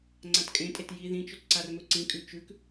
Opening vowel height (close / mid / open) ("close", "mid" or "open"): open